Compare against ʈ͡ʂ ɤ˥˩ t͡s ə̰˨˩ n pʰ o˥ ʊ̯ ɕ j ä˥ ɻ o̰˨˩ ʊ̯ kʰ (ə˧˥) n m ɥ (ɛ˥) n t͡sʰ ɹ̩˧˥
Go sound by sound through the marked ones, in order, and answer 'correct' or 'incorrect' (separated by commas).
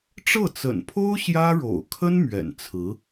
incorrect, incorrect